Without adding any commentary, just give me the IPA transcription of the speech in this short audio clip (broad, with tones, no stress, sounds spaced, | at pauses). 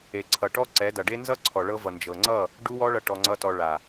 e˨ ǀʰ ʌ˨ ʈ ɔ˦ ǀ ɛ˨˦ d ʌ˨ ɖ e˦ n z ʌ˦ ǀʰ ɔ˨ ɭ ɤ˧ v ʌ˨ n d͡ʒ ɤ˨ ŋ͡ǀ ʌ˦˨ | ɖ u˦ w ɔ˦ ɭ ʌ˧ ʈ ɔ˧ ŋ͡ǀ ʌ˦ t ɔ˧ ɭ a˨